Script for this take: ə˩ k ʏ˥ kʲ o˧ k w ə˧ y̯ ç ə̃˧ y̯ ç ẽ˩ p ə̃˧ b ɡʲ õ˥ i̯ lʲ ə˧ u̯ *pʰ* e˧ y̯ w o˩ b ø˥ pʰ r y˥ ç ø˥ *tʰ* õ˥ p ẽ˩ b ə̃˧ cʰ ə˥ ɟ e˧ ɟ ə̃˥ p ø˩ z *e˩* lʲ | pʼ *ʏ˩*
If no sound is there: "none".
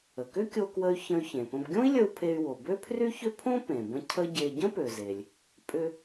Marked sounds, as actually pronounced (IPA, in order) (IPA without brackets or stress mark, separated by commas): pʰ, pʰ, e˩, ʏ˧